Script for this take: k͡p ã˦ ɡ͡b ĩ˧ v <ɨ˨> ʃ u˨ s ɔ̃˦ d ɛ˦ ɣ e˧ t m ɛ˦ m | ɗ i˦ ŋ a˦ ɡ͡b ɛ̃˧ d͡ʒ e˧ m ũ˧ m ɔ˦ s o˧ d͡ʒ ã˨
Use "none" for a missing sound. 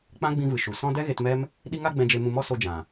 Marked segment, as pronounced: ɨ˨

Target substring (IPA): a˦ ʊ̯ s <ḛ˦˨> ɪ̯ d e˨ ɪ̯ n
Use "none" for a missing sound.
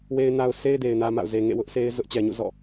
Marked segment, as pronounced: e˦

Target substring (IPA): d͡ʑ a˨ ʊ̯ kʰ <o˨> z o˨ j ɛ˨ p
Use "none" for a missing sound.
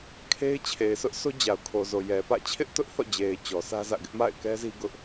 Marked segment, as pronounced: o˨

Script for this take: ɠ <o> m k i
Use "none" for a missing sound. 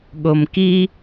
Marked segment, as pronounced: o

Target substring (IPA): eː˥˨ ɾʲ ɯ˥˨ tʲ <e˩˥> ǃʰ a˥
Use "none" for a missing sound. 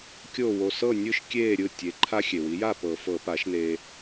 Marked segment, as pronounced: e˩˥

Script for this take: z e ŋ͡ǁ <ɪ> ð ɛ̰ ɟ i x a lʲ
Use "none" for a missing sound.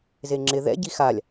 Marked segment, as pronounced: ɪ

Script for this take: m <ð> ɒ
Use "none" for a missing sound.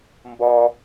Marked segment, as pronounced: b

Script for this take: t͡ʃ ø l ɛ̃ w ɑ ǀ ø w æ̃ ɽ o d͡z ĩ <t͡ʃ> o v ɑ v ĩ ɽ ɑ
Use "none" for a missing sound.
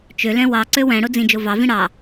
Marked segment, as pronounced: d͡ʒ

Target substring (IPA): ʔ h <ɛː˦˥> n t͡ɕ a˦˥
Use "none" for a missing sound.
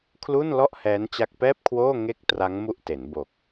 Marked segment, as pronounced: ɛː˦˥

